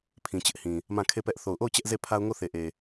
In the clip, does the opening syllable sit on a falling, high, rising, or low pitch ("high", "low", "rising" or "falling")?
low